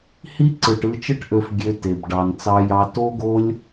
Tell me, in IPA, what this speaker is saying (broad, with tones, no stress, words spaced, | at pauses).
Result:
hi˦ǀɯ˨ʈ ɯ˧t͡ʃɯ˦ʈʔø˧f ɡʲø˧te˨b ɖɑ˨n t͡sɑ˧jɑ˧ to˦ɡo˦lʲ